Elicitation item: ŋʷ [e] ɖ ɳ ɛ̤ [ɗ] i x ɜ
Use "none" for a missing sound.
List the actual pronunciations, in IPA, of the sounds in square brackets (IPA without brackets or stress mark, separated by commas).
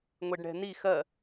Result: e, n